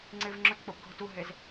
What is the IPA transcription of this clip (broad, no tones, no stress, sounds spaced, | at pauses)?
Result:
ŋ͡ǀ ɪ v ŋ͡ǁ ʊ t k͡p ʊ p ɡʱ ʊ t u ɦ e z